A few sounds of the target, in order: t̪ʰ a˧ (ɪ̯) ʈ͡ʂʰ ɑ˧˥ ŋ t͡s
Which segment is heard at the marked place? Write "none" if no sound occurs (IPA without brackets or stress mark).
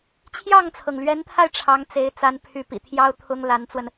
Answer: ɪ̯